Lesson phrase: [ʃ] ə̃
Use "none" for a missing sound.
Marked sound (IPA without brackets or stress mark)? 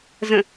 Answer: z